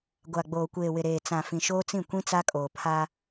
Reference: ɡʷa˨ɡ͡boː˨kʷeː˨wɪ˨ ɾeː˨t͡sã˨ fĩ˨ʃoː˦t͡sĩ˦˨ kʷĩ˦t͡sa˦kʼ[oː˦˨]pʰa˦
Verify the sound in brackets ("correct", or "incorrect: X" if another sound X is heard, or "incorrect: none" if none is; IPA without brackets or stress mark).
incorrect: oː˨